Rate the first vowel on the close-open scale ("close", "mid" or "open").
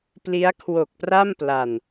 close